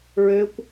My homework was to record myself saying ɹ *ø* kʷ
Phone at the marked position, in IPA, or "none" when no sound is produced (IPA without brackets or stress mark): ø